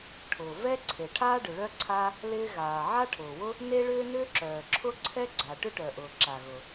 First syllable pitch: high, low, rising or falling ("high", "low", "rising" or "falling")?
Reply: low